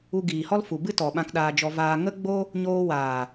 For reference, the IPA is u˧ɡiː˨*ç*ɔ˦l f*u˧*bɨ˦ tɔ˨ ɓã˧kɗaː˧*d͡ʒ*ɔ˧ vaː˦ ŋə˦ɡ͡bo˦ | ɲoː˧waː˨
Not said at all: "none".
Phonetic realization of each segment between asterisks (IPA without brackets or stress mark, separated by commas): h, u˨, d͡ʒ